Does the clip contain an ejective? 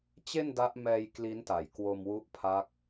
no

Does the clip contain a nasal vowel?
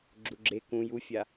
yes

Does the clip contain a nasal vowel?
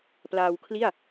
no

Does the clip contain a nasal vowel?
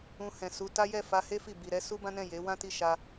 yes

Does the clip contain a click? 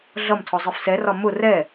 no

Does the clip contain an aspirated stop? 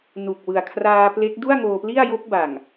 yes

